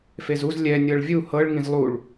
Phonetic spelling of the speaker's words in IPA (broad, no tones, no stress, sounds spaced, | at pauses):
f e z u z lʲ ɛ nʲ ɤ ɭ vʲ u h ɤ ɭ ŋ ĩ z lˠ u ɭ